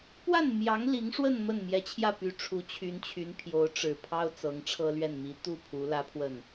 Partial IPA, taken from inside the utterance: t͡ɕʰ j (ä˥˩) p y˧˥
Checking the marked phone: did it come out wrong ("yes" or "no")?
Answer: no